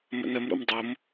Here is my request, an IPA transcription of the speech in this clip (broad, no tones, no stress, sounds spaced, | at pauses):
m ə̰ n ə m ɾ o̰ m dˤ o m